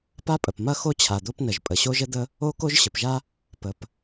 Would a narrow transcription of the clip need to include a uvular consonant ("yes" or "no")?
no